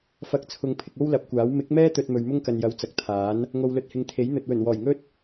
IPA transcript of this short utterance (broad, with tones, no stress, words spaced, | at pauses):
fɐ˨˥k̚ t͡sʰʊ˨ŋpʰɪ˨k̚ o˥wlɐ˨˥p̚kʷaː˨˥w mɪ˨˥k̚mɛː˥t̪ɵ˨t̚ mɵ˨ɥmʊ˥ŋkɐ˨njɐ˨˧w t͡sɐ˨k̚t̪ʰaː˨˥n | ŋo˨wlɵ˨˥t̚hɪ˨˧ŋ t̪ʰe˨˥jn̪ɵ˨t̚ wɵ˨˩nwɔː˨˩jŋɵ˥t̚